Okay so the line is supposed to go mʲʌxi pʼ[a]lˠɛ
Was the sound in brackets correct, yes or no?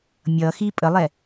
no